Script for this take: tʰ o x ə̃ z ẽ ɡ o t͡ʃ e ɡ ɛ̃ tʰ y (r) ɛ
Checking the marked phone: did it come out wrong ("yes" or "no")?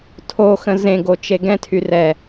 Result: no